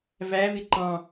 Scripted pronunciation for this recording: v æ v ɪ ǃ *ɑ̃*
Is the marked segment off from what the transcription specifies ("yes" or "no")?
no